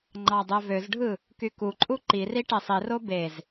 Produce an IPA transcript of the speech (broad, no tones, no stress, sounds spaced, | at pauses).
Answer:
ŋ͡ǃ ɑ dˤ ø v ø z ɖʱ ɯ | k y k u ǃʼ u ǃ i r i ʈ e sˤ i r o b e z